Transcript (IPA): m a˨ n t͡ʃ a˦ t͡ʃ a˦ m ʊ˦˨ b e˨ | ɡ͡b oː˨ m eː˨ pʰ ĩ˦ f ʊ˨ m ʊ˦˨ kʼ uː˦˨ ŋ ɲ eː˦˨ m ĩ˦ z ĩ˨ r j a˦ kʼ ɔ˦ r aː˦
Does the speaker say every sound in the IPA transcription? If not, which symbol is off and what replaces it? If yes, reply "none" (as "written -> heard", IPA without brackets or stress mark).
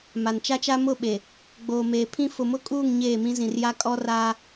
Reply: b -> ɓ